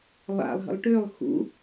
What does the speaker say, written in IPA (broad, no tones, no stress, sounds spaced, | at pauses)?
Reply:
lˠ a̰ lˠ ɦ ə̰ lˠ ʈ ø lˠ x ṵ